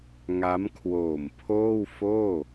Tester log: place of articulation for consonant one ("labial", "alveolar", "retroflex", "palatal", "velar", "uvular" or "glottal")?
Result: velar